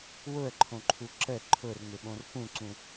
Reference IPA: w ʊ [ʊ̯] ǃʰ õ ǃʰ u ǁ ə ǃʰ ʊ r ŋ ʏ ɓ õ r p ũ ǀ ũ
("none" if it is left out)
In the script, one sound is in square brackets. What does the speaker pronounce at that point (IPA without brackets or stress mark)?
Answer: ə̯